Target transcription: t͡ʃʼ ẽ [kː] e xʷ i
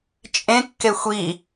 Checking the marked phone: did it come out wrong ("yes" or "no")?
no